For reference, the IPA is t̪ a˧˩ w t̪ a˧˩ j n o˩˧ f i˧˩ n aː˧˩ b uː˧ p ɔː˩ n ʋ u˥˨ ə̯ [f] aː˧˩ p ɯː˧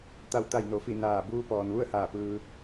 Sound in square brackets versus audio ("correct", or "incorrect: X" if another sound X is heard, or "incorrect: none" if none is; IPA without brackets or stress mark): incorrect: h